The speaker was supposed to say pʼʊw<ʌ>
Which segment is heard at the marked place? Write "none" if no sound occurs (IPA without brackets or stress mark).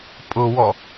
ɔ